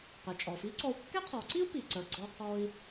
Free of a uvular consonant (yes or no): no